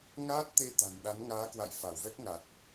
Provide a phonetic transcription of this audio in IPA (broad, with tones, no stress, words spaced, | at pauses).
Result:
ŋaː˦˥t̚t̪e˧t̪a̤˨˩n ɗa˨˦nŋaː˨˦kwa̰˧˨j fa˧˩wvɛ˦˥k̚ŋa˨˩t̚